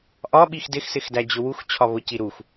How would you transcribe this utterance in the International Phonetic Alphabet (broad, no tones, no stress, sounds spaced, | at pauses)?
ʔ ɒ ɓ i x d ɪ x s ɪ x d æ d͡ʑ ʊ w u x t͡ɕʰ ɒ β ʊ c i ɾ u x